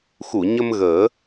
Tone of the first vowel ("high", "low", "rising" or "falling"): low